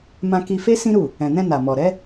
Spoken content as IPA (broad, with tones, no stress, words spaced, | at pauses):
mã˧ki˧ fe˦ sĩ˦ɾu˦˨ | ɛ̃˨nɛ̃˧ na˨mɔ˨ɾɛ˨˦